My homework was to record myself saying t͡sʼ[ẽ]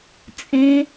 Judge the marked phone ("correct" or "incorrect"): correct